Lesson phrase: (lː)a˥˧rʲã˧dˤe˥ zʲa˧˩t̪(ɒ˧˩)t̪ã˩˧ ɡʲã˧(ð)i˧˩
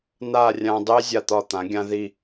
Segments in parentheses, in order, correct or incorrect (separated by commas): incorrect, correct, correct